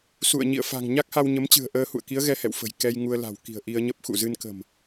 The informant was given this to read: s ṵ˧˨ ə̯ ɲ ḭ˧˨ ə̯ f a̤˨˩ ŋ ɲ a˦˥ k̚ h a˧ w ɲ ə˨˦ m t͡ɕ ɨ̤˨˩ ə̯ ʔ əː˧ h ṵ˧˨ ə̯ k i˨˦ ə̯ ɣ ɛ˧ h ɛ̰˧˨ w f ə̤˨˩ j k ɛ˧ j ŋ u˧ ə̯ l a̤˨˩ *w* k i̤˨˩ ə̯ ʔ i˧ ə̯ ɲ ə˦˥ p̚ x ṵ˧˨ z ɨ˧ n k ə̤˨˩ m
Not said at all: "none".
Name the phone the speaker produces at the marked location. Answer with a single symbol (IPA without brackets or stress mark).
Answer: w